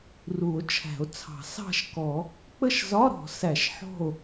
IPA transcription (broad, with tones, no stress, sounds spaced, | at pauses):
r u˨˩˦ o̯ t͡ʃʰ æ̤˨˩˦ o̯ t͡sʰ ɑ̤˨˩˦ s ɑ̤˥˨ ʃ k ɔ˨˩˦ | k͡p ə˥˨ ʃ z ɒ˧˥˧ ɾ ɔ̤˨˩˦ s æ˨˩˦ ʃ ħ ɔ̤˥˨ o̯